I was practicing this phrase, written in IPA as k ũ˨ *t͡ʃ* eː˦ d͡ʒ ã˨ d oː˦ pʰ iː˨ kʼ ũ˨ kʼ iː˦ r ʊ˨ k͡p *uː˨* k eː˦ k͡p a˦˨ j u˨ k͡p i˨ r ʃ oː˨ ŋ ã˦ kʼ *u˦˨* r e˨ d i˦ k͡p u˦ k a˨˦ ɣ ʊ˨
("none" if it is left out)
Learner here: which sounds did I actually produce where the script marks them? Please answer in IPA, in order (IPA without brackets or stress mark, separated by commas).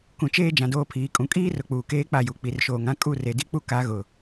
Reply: t͡ʃ, uː˨, u˦˨